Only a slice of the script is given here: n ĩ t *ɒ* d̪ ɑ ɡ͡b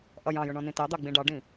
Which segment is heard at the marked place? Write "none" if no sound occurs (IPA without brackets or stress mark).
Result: ɑ